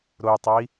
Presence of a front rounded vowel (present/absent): present